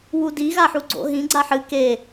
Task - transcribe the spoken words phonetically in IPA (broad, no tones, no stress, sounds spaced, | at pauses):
w u d i ɣ a ħ u ɡ͡ǀ o̰ ɦ ĩ ɡ͡ǀ a ħ ɨ k e